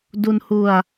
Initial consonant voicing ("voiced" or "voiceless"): voiced